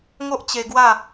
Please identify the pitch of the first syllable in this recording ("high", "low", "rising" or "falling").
high